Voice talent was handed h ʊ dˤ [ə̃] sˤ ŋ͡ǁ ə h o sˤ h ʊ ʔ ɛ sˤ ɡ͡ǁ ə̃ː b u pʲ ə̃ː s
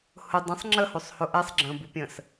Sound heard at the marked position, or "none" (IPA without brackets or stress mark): ə̃